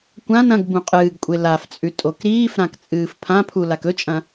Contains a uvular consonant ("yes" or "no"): yes